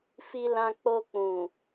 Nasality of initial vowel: oral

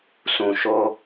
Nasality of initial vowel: nasal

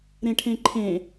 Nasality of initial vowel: nasal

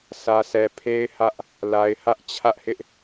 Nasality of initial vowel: oral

